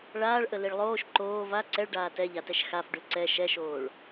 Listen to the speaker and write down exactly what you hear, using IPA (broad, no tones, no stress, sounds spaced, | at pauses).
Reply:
ɭ aː ɭ ʔ ə l i ɭ lˠ oː ʃ ǃ oː v a ǀ ɛ ɭ ɖ aː t ɛ ʎ a t ɛ ʃ x a f ɖ ʉ ǀ ɛ ʃ ɛ ʃ oː ɭ